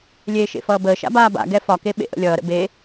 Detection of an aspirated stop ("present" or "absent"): absent